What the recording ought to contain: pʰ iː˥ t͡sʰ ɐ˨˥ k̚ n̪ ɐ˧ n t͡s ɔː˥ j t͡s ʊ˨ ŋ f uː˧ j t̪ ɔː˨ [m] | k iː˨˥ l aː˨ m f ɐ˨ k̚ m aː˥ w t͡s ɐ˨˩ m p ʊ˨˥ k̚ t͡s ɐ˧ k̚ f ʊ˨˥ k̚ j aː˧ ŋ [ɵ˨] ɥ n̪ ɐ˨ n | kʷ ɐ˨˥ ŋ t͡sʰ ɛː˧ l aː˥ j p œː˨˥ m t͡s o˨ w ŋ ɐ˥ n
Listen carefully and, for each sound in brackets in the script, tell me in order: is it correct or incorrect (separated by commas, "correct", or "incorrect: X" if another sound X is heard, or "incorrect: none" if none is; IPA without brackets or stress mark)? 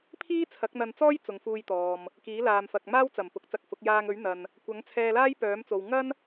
correct, incorrect: ɵ˨˥